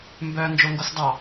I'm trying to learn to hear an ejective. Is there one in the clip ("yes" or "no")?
no